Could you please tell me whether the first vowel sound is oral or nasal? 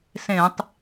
nasal